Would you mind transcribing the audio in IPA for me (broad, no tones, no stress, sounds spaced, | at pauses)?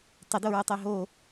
tˤ ɘ d o ɹ ɨ tˤ e ɦ o